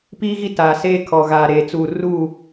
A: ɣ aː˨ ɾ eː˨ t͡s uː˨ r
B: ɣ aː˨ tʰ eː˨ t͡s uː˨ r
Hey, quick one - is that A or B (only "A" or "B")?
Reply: A